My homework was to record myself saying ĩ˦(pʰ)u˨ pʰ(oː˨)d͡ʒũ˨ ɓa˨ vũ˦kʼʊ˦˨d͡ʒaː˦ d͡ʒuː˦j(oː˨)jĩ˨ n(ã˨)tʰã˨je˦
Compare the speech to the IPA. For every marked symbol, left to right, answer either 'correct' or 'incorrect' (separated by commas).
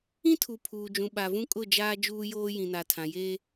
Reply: incorrect, incorrect, incorrect, incorrect